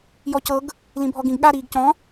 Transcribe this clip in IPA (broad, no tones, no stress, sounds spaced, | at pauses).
j ɔ c ɤ ɡ | l ĩ bʱ ɔ ɡ ĩ ɡ ɠ a ɾ iː ɡ c ɔ̃